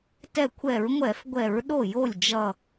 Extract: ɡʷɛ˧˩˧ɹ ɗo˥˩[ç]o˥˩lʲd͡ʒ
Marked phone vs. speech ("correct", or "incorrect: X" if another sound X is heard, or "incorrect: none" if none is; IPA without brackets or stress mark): incorrect: j